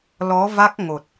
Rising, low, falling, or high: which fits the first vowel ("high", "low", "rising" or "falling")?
rising